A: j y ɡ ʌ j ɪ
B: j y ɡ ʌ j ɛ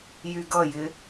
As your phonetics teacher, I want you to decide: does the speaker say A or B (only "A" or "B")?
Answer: A